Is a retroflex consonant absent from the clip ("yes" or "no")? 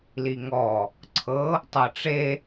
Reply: no